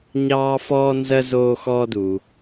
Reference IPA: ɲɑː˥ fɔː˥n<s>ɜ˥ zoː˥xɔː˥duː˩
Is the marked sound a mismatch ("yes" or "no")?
yes